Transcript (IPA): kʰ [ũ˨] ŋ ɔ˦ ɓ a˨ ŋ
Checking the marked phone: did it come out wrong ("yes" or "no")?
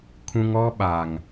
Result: yes